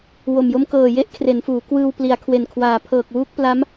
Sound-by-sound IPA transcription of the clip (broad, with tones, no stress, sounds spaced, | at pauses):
w o˨˩ m j o˦˥ m k ɤː˨˩ j e˦˥ ʔ kʰ r e˩˦ n f uː˩˦ k w ɯː˧ w p l i˩˦ a̯ kʰ w e˨˩ n kʰ w aː˩˦ pʰ ɤː˨˩ k̚ w uː˦˥ k̚ p l a˦˥ m